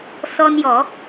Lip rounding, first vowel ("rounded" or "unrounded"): rounded